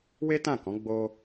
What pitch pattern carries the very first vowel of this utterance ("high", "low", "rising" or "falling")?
high